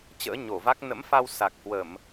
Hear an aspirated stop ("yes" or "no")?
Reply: no